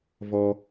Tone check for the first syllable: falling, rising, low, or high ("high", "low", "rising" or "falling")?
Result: high